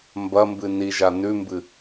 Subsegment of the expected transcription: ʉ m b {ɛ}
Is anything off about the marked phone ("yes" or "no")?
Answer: yes